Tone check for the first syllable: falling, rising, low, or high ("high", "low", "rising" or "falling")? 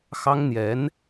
high